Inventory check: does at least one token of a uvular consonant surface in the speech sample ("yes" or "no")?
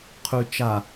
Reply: yes